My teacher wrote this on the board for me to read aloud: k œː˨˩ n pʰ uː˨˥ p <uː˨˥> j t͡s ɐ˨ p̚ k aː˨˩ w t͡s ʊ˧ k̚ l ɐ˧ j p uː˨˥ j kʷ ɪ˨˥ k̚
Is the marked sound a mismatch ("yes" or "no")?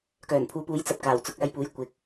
no